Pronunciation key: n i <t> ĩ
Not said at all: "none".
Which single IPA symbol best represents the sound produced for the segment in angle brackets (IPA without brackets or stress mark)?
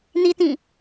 t